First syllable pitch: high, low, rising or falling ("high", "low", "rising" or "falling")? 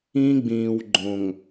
high